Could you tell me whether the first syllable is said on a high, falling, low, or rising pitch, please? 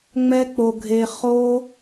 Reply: high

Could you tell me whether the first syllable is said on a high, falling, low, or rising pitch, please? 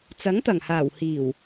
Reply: rising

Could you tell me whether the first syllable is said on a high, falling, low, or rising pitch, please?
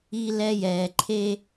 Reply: high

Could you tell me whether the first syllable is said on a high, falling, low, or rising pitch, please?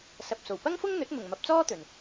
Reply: low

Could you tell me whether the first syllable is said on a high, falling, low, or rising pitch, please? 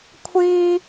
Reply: high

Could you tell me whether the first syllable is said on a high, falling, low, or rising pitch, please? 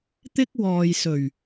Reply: high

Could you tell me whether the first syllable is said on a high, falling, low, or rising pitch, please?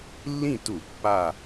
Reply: falling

